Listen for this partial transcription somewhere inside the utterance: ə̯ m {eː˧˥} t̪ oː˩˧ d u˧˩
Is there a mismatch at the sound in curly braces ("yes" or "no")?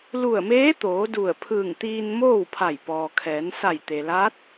no